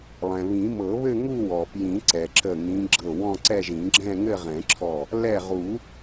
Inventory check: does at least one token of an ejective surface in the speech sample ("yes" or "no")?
no